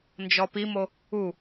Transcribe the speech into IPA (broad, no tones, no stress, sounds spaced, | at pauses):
n d͡ʒ ɔ p i m o | u